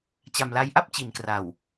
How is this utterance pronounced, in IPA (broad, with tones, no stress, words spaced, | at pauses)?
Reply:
t͡ɕa˨˩mla˧jʔa˥˩p̚ t͡ɕi˨˩nkra˨˩w